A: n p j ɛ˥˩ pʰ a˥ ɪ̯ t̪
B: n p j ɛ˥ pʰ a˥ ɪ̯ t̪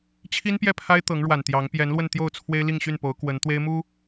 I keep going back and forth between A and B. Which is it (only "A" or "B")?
A